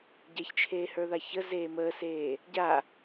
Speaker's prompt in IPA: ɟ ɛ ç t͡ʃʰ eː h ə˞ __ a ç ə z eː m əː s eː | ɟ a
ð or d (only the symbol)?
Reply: ð